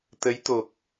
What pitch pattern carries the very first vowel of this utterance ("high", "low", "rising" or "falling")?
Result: rising